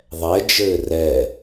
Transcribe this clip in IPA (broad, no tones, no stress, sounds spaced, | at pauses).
ðˤ ɛ d͡ʒ ɘː r ɛ